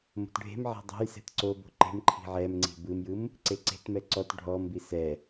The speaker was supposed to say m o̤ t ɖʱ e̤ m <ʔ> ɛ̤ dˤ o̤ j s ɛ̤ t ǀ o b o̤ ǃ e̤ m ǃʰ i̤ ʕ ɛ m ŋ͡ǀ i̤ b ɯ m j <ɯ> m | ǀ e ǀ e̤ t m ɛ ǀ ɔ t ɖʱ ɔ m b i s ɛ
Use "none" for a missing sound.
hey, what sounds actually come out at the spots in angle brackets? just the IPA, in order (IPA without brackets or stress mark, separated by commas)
ʕ, ɯ